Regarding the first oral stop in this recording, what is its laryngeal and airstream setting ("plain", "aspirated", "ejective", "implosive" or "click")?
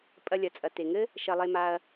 ejective